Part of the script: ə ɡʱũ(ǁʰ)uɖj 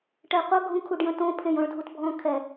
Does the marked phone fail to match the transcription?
yes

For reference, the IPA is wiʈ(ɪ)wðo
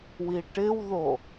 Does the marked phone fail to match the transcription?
no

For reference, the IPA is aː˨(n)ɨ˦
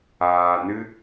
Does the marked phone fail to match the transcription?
no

